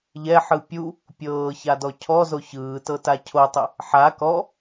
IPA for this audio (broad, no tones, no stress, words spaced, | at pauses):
ʎɛħɯ pʲu | pʲɤːçadɔ cʰɔzo çɯːtɤta cʰotˤɯ | ħa kɔ